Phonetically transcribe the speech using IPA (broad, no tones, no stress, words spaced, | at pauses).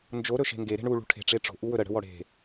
nd͡ʒo ɾɵʃe̤ŋɡe ɾe̤ɳu ɭṳʈʰe̤ ʈ͡ʂeʈ͡ʂo̤ ʔuwɵɾə ɽə̤wɔɽe̤